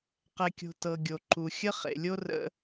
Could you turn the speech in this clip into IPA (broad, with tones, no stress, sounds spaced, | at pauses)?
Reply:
q ɛ˨ kʲ o̤˨ t ɤ˨ ɡʲ o˨ ǃ u˨ xʲ ə˦ χ ḛ˨ lʲ o˦ r ə̰˦